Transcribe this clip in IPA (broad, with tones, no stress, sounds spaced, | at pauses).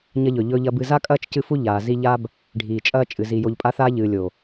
ɲ ɐ˦ ʎ ɵ˨ ʎ ɵ˦ ʎ ɐ˦ b ɨ˨ z a˦ kʼ ɐː˦ t͡ʃ c ɨ˦ f u˦ ʎ aː˨ z i˦ ʎ a˦ b | ɖʱ iː˨ t͡ʃʼ ɐː˦ t͡ʃʼ ɨ˨ z i˨ j o˨ ʎ pʼ a˦ θ aː˦ ʎ ɨː˨ lʲ o˨